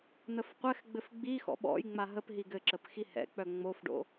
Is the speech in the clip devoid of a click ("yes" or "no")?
no